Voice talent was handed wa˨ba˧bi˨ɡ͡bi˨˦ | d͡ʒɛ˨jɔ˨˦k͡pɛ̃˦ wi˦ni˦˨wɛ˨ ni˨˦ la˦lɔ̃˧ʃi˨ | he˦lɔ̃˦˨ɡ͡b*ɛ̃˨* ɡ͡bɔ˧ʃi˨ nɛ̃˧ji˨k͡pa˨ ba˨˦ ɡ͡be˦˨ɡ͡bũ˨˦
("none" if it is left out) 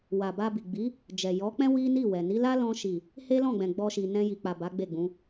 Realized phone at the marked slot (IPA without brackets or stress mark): ɛ̃˨